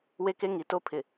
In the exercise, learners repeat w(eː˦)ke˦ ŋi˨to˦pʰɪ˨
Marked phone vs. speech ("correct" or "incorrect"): incorrect